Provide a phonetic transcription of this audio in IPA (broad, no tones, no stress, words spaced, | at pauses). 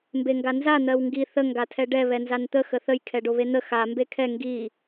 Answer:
mbeŋɡanza n̪ɜwŋɡi θə ŋɡatʰɛɖɛ βɛnzant̪ə xəθəj kʰɛɖoβen̪ə xa mbekʰɛ ŋɡi